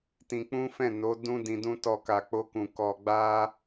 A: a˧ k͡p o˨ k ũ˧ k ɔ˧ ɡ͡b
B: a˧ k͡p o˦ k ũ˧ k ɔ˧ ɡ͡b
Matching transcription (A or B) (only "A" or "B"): B